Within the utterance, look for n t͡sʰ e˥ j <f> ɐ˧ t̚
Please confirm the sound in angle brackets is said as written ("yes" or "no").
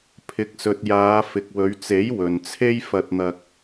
yes